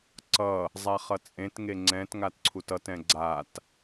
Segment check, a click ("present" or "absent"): present